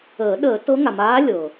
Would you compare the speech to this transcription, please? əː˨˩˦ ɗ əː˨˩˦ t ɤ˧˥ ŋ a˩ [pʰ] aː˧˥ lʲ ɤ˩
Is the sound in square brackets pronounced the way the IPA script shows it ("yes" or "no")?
no